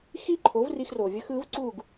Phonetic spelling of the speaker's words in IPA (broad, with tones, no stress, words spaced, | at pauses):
xi˥ǃʰo˩˥vri˧xro˩ vʲə˥xɯ˩˥vǀu˥˩ɡ